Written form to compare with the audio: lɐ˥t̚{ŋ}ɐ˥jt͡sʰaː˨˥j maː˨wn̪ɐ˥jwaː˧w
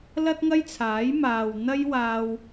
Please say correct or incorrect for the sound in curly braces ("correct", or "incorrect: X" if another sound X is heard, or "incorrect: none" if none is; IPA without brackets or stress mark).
correct